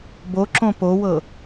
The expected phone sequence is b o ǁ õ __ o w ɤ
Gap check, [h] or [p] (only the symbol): p